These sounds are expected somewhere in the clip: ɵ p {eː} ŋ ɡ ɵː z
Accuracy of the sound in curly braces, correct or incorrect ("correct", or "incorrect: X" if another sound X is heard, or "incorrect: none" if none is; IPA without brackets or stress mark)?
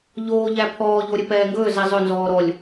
incorrect: ɛː